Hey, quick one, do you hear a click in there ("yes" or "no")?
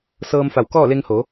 no